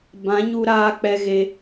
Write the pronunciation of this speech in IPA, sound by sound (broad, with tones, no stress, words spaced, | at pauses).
bã˨˦ɲu˧ɾaː˧ k͡pɛ˧ɣe˧